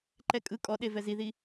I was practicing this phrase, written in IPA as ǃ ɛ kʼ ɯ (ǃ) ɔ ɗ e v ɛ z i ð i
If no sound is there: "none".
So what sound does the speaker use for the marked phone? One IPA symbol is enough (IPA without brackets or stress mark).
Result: kʼ